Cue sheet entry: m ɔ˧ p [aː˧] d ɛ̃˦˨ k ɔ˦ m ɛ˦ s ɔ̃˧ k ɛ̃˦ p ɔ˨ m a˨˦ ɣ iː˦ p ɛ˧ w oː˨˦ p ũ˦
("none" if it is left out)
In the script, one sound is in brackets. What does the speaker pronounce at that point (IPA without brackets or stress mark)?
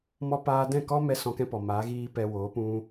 aː˧